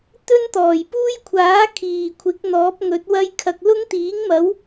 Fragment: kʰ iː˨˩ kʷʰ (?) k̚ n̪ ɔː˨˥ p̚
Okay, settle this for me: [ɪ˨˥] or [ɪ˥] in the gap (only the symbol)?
ɪ˨˥